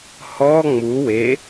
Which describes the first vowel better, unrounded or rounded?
rounded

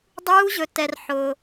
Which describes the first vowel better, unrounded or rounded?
rounded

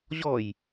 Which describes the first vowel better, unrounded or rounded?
rounded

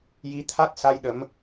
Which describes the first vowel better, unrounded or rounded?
unrounded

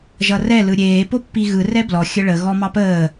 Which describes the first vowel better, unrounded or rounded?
unrounded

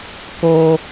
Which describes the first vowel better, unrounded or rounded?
rounded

